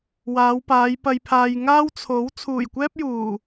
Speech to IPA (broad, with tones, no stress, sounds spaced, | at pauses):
w aː˨˧ w p aː˨˧ j p ɐ˧ j pʰ aː˧ j ŋ aː˥ w t͡sʰ o˨˥ w t͡sʰ uː˨˩ j kʷ ɛː˥ p̚ j uː˨˩